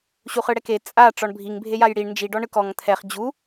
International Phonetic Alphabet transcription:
ɕ u χ ɯ ɽ ɛ k e t͡sʼ a ʈ͡ʂ ɔ ɳ bʱ i ŋ bʱ e j a j ɽ i ɳ n d͡ʒ i ɖ ɔ ɳ ɯ k ɔ ŋ t̪ʰ ɛ χ d͡ʑ u

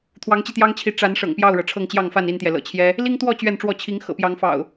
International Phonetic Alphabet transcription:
t̪ʰ w ɑ˨˦ ŋ t͡ɕ i˧ t̪ j ɑ˦ ŋ t͡ɕʰ i˨˦ ʈ͡ʂ a˨˦ n ʂ ɤ̰˨˩ ŋ p j ɑ˥˨ ʊ̯ ɻ ɤ˩ ʈ͡ʂʰ ɤ˥˨ ŋ t͡ɕ j ɑ˥˨ ŋ f a˥˨ n i˥˨ n t̪ j ɛ˩ l ɤ̰˨˩ t͡ɕʰ j ɛ˦ | l i˦ ŋ t̪ w ɔ˥˨ t͡ɕ ɥ ɛ˥˨ n ʈ͡ʂ w ɔ˥˨ t͡ɕʰ i˨˦ ŋ x ɤ̰˨˩ p j ɑ˨˦ ŋ f ɑ̰˨˩ ʊ̯

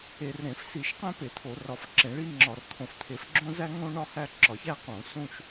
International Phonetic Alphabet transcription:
e˧˩˧ r ɾ ẽ˧˩˧ f s i˧˩˧ ʃ q æ̃˦ p e˧˩˧ t̪ʰ o˧˩˧ r ɒ˧˩˧ f ǁ ẽ˧˩˧ ɭ i˦ ŋ͡ǁ ɒ˧˩˧ r t̪ʰ õ˧˩˧ f t̪ʰ e˧˩˧ f ɡ͡ǁ õ˦ z æ˦ ŋ õ˦ ɳ ɒ˦ h æ˦ ǁ ɒ˧˩˧ ç æ˦ q õ˧˩˧ s ũ˦ ʃ

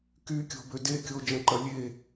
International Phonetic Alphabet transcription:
k y kʲ o̤ b ø d e kʲ o d͡ʒ ɐ̃ ǃ ɐ lʲ e

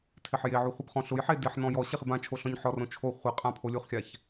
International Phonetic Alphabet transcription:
tʰ ɪ ħ j e ʕ u χʷ ɪ b χ ɔ̃ ɬ ʊ j ħ e d ɪ ħ n ɔ̃ j ɔ ɕ e χ ɪ b ã t͡ʃʰ o ɬ ɔ̃ ɲ ħ ɔ r õ t͡ʃʰ o χʷ ɪ qʼ ã pʰ o lʲ u χ xʲ a ç

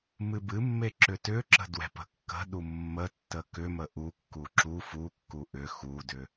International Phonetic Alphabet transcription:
m ɨ b ɨ mː e ǁ ʏ t ʏ ǁ ə̤ d w ɛ̤ p ə̤ kː ə̤ ɗ u mː ə tː ə k ʏ m ə ʔ u kː u ǁ u f u kː u ʔ ʏ x u d ʏ

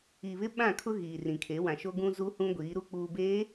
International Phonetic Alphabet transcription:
i˨ β ɪ˦ ɓ ã˦˨ kʰ ʊ˦ ɣ iː˨ r ĩ˨ kʰ e˨˦ w ã˨ ʃ o˦ ɡ ũ˦ z u˦ h ũ˦ ɡʷ iː˨˦ ɾ u˦ k͡p uː˨ b eː˨˦

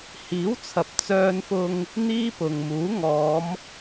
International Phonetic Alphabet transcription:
h iː˨˥ w t͡sʰ ɐ˨ p̚ t͡s œː˧ n f ʊ˧ ŋ | n̪ iː˥ p ʊ˨ ŋ m uː˨˥ ŋ ɔː˨˧ m

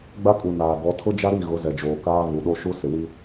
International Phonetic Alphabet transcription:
ɡ͡b a˦ kʼ u˨ n aː˨ ɡ ɔ˨˦ tʰ ʊ˦ d͡ʒ a˦ ɾ i˦˨ ɣ ʊ˨˦ z ɛ˨ d͡ʒ oː˨ k aː˦ ɣ u˨ ɗ o˦ ʃ u˦ s ɪ˨ w i˦

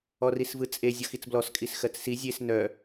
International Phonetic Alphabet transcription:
ɔ r i s v ɯ t͡sʼ e zʲ ɔ x i t͡s b l ɔ s kʼ i s x ɜ t͡s s i zʲ e s n œ

